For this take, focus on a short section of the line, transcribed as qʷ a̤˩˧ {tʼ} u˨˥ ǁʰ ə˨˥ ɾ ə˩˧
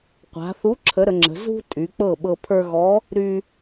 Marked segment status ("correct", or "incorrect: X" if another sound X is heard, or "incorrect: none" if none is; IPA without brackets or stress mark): incorrect: θ